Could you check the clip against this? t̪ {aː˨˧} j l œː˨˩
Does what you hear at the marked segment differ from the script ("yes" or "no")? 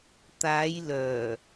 no